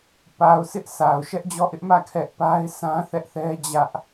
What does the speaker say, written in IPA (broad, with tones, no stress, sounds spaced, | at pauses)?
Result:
p a˨ ʊ̯ s ɪ˦ ʔ s a˨ ʊ̯ ʃ ɛ˦ ʔ d͡ʑ ɔ˦˨ ʔ ɪ˦ ʔ m ä˦˨ kʰ ɛ˦ ʔ p a˦ ɪ̯ s ã˦ θ ɛ˦ ʔ θ ɛ˦ d͡ʑ ä˦ ʔ